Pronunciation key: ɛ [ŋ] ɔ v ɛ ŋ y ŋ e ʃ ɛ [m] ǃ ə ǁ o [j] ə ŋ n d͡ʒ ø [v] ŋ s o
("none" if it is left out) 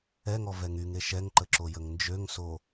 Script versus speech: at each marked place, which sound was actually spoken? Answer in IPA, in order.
ŋ, ŋ, j, none

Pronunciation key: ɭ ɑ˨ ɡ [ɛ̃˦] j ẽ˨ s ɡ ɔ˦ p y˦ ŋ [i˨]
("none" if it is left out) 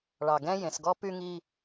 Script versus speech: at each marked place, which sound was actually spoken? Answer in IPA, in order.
ɛ̃˦, i˦

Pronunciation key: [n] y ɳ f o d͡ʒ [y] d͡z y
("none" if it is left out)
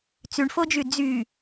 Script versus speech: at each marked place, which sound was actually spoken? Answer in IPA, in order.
t͡s, y

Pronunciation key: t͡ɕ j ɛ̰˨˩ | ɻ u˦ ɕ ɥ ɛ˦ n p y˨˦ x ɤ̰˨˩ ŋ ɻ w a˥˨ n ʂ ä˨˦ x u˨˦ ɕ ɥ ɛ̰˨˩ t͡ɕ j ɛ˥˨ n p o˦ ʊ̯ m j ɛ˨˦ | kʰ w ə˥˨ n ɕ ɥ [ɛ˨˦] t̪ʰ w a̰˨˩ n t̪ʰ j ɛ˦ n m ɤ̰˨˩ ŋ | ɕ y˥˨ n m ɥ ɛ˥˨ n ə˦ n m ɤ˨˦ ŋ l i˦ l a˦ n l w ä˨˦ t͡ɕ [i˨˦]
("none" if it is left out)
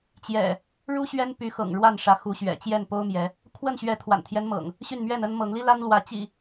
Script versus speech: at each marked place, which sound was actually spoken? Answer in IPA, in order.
ɛ˨˦, ḭ˨˩

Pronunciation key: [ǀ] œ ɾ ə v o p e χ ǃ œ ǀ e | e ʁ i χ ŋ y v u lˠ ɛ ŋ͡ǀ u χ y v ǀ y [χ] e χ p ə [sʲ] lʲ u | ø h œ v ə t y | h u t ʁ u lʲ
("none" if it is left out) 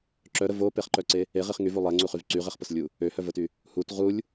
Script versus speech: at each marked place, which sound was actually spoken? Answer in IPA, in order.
ǁ, ʁ, s

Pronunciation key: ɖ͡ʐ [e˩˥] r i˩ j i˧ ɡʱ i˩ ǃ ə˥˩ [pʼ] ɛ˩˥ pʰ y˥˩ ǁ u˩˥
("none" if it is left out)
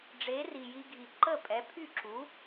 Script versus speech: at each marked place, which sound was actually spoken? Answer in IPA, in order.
e˩˥, pʼ

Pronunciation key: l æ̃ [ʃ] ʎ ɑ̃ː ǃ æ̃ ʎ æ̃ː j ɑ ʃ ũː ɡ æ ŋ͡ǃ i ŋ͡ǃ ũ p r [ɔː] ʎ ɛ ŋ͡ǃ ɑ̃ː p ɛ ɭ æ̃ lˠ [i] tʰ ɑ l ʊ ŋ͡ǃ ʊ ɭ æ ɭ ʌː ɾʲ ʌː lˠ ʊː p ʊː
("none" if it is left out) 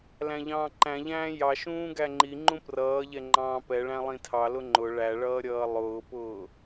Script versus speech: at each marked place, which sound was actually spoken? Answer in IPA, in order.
none, ʌː, ĩ

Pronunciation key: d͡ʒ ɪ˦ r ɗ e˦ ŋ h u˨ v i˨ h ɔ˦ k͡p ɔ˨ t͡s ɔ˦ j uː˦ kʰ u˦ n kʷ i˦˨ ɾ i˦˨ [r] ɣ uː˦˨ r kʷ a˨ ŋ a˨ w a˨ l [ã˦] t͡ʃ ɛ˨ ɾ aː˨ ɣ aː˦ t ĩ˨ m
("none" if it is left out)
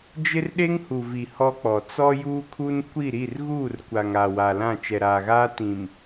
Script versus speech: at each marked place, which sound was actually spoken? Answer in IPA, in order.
r, ã˦˨

